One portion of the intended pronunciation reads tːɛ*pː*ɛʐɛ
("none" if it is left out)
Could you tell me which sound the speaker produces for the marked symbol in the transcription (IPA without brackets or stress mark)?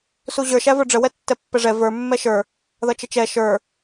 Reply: pː